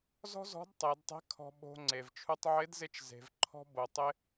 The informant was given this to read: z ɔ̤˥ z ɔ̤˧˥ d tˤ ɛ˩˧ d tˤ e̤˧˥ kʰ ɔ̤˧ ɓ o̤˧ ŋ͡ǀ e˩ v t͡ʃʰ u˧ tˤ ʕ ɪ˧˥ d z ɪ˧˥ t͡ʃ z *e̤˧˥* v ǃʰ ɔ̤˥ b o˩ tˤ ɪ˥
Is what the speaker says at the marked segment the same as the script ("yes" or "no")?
no